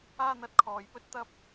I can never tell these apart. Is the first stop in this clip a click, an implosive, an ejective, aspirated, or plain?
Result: plain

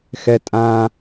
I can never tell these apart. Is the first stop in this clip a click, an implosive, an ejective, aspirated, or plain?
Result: ejective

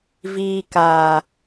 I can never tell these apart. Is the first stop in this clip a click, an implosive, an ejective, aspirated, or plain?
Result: plain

